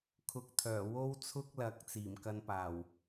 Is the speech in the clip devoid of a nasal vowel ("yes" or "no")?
yes